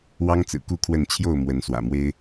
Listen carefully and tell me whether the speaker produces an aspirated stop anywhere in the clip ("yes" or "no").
yes